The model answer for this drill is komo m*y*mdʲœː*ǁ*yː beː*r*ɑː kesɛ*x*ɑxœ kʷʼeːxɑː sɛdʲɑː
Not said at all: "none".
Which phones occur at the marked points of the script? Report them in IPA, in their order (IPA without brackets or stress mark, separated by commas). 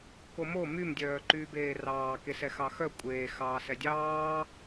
y, ǃ, r, x